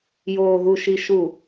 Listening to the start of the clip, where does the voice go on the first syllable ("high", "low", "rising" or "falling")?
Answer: low